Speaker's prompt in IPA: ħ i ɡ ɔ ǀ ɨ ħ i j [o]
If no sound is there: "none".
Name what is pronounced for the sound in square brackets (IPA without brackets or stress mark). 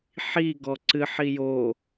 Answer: o